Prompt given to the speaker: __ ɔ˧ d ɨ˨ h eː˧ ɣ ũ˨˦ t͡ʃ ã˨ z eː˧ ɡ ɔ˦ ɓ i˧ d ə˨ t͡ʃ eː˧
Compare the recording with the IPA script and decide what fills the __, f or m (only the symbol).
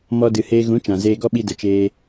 m